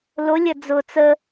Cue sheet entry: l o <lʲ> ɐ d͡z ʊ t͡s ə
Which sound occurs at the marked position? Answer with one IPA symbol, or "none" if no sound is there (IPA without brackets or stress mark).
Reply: lʲ